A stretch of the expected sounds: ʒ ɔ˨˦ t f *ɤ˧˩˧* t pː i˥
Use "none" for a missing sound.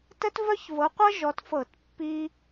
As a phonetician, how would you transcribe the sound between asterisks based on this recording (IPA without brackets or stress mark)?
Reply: ɤ˧˩˧